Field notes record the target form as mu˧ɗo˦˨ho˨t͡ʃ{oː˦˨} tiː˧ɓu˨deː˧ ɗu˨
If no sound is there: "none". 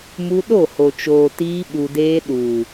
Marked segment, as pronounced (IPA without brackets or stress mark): oː˨